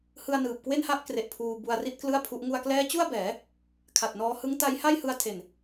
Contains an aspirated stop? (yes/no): yes